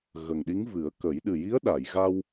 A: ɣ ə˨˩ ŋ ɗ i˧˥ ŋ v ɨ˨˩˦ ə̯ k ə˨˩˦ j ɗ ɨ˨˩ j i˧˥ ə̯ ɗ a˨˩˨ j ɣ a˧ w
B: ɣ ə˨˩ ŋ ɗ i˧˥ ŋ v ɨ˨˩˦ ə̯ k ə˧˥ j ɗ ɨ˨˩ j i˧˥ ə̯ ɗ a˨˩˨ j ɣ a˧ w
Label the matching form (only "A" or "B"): A